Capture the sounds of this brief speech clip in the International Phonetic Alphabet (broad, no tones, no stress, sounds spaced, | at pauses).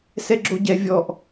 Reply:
s ɛ ɡ͡ǁ o ɟ ɛ vʲ ɔ ʔ